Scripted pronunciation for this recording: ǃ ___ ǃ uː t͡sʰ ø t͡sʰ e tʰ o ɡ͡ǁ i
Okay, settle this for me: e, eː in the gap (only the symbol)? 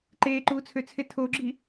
eː